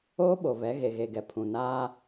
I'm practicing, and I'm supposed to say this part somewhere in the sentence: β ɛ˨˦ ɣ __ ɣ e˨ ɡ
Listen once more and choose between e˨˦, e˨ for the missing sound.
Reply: e˨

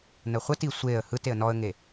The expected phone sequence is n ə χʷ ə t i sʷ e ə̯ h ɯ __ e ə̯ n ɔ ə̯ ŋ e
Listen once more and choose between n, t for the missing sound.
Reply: t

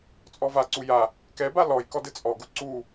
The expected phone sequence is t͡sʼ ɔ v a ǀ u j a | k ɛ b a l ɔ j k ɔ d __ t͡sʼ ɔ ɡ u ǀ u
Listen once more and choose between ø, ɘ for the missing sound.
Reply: ɘ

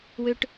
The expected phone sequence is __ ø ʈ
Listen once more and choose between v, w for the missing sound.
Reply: w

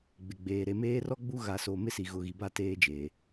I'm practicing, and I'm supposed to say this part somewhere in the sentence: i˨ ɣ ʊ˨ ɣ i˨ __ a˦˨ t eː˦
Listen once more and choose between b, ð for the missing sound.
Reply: b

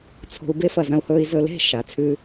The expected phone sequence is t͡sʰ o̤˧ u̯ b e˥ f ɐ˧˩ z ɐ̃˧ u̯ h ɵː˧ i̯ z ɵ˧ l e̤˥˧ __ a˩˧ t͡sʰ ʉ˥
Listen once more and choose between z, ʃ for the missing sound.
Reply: ʃ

